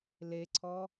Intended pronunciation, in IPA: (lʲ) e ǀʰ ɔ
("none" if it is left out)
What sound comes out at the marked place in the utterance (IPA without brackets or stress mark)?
l